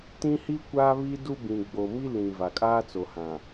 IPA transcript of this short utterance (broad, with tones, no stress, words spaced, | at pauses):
tĩ˦hi˦ kʷa˦βi˦du˦ bĩ˨ɡ͡bo˨mi˦ lĩ˨ va˨kʼaː˦t͡so˨ hã˨